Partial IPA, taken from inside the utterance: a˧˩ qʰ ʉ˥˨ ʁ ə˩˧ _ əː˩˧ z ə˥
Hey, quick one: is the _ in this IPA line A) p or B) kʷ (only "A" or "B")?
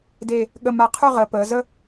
A